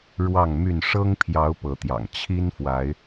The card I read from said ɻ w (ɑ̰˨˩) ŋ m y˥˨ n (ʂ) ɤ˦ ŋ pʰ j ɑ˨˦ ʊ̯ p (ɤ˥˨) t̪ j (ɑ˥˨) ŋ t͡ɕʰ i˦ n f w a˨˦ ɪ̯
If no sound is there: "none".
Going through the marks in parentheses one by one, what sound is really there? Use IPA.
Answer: ɑ˥˨, ʂ, ɤ˨˦, ɑ̰˨˩

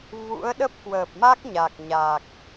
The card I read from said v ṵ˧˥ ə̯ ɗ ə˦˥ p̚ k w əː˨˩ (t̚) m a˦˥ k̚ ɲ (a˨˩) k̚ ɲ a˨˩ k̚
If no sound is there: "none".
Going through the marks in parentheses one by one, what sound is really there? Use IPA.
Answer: p̚, a˨˩

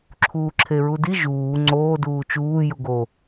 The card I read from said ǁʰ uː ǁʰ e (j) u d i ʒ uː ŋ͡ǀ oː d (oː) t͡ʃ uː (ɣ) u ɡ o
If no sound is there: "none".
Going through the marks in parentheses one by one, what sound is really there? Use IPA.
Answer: ɹ, uː, j

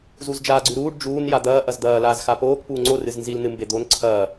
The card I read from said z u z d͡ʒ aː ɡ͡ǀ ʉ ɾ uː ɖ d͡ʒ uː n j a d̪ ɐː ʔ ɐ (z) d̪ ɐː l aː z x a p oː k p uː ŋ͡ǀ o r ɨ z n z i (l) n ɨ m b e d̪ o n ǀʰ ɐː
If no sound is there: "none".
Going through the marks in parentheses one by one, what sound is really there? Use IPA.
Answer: z, l

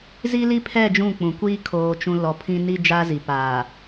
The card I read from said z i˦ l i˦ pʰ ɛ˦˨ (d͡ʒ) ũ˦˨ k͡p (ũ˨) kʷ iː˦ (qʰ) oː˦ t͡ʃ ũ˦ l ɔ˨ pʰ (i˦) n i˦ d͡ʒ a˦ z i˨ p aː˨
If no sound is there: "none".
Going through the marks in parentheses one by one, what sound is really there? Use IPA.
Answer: d͡ʒ, ũ˨, kʰ, ĩ˦

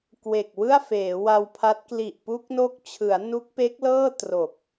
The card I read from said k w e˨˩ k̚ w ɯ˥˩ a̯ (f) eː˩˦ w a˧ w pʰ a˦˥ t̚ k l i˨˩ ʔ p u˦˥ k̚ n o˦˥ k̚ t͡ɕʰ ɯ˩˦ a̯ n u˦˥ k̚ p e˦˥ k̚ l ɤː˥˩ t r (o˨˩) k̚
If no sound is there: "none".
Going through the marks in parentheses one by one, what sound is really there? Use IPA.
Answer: f, o˨˩

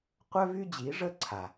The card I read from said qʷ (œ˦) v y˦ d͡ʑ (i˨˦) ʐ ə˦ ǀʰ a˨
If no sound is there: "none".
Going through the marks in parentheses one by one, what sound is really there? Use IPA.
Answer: œ˦, i˨˦

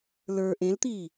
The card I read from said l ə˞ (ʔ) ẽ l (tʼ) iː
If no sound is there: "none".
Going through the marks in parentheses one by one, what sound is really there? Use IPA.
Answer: ʔ, t̪

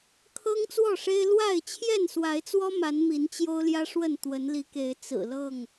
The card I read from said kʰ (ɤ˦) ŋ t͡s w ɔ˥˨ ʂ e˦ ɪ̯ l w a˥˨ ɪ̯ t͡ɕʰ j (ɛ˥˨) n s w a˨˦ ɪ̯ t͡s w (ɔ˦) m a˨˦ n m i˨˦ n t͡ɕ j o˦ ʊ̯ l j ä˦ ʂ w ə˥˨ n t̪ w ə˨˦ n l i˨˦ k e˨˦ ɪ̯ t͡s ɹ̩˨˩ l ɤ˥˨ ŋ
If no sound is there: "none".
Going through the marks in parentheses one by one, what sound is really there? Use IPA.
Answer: ɤ˦, ɛ˥˨, ɔ˦

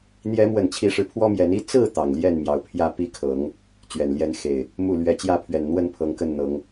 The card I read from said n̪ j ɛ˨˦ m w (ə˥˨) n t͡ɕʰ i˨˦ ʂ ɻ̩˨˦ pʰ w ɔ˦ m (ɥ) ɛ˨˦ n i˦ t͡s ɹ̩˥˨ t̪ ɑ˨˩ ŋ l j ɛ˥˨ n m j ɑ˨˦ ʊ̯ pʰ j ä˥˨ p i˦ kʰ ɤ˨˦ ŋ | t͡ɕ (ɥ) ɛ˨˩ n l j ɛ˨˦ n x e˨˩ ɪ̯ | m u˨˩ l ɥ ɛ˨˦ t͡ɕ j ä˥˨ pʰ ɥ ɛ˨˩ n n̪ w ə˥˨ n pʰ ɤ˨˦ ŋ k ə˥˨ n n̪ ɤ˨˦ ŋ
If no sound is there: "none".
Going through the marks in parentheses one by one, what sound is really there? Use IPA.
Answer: ə˨˩, j, ɥ

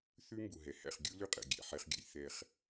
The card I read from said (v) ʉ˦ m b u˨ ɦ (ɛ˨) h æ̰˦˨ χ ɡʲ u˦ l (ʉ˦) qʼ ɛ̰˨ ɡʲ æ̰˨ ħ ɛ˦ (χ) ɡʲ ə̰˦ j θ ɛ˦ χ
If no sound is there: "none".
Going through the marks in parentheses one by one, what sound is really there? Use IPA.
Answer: θ, ɛ˨, ʉ˦, χ

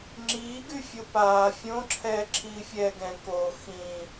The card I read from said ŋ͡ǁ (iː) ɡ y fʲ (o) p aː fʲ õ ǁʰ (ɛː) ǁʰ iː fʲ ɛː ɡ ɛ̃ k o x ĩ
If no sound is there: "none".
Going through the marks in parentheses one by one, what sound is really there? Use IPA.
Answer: iː, o, ɛː

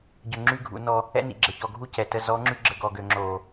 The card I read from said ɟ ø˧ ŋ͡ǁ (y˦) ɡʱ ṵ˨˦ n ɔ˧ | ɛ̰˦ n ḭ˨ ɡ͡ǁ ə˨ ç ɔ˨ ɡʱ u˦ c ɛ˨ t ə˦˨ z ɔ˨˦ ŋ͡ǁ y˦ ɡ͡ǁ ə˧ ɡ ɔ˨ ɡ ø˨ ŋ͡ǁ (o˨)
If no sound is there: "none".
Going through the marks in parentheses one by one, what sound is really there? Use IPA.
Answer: y˦, o˨

